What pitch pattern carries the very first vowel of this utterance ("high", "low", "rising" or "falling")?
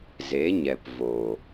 rising